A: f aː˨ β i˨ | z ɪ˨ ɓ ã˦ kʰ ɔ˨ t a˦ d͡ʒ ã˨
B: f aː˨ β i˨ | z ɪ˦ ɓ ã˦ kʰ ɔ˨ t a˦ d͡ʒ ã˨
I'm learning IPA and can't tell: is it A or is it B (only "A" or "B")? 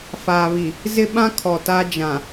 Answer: B